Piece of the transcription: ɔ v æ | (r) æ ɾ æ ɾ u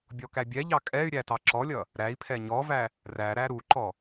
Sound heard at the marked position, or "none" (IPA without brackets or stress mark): r